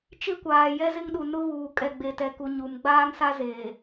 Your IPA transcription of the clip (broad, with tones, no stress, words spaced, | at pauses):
t͡ʃɪ˦kʷaː˨ jɛ˦zɪ˦ŋɗu˨ nʊ˦ βuː˨ kʼɛ˨ɡ͡be˨tɛ˨ku˨ ɲu˨m ɡ͡baː˦ŋsa˦zeː˨